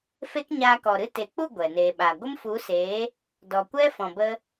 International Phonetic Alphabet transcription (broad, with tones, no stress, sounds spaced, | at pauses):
f e˦ k ɲ aː˧ k ɔ˨ ɾ ɨ˦ t e˨ k͡p u˦˨ ɡʷ ɛ˨ n eː˨ ɓ a˨ ɡʷ ə˦ m f u˨˦ s eː˨˦ | d ɔ˨ kʷ ɛ˦ f ɔ̃˨ b ə˧